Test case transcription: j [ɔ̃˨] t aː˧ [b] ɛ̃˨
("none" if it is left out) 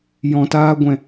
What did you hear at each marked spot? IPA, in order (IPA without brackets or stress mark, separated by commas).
ɔ̃˨, ɡʷ